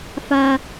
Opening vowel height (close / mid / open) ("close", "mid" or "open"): open